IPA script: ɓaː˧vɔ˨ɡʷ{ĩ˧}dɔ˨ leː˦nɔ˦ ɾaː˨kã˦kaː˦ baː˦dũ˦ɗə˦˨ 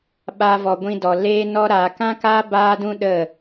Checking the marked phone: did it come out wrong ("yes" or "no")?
no